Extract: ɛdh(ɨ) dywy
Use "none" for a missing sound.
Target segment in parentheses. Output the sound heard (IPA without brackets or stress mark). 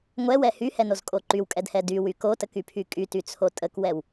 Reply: ɛ